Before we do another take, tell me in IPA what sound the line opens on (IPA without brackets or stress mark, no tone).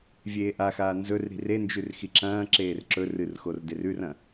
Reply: vʲ